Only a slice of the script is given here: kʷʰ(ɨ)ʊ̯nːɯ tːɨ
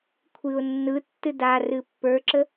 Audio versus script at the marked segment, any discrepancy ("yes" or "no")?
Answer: no